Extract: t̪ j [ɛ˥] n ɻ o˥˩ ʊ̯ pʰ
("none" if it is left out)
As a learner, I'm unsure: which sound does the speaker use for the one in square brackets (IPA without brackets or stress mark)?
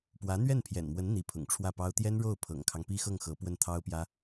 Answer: ɛ˥